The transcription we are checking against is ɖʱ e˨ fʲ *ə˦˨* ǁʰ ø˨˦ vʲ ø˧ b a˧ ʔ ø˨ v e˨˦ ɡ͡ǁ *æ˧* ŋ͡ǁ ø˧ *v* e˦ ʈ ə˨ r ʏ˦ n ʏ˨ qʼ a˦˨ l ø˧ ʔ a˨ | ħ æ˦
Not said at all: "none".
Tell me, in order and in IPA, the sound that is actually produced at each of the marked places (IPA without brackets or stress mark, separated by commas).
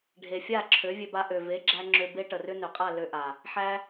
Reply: a˦˨, æ˧, b